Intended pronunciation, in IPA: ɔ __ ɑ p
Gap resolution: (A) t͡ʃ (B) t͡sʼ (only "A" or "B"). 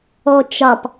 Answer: A